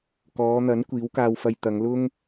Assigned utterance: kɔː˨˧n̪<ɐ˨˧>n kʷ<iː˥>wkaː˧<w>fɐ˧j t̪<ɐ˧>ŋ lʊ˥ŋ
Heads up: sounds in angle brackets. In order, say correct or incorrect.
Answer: incorrect: ɐ˨˥, incorrect: iː˨˥, correct, incorrect: ɐ˨˧

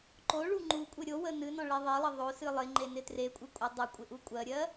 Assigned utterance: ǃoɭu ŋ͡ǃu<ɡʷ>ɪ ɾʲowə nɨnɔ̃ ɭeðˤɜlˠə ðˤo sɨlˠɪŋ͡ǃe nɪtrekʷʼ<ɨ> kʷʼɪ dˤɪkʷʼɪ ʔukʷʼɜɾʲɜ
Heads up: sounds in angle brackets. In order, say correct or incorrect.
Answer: incorrect: kʷʼ, correct

